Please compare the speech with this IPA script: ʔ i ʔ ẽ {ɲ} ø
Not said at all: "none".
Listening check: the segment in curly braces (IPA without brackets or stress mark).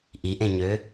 ɲ